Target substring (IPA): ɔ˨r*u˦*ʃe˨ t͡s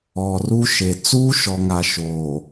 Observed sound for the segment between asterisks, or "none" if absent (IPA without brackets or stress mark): u˦